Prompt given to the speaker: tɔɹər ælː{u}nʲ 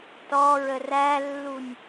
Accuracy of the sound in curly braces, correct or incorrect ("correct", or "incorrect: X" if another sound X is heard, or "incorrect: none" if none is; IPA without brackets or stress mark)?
correct